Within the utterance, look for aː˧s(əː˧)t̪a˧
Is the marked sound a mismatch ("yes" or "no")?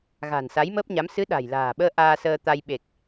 no